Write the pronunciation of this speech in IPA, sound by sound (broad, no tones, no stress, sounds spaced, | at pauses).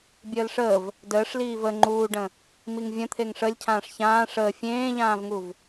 bʲ əː l ʂ əː v | d əː ʂ l iː v ə ŋ͡ǃ uː ɖ ə̃ | m i ŋ vʲ ə̃ t̪ʰ e ŋ ʂ ə lʲ cʰ ãː ʂ ç ãː ʂ əː fʲ ẽː ʎ ãː v ŋ u v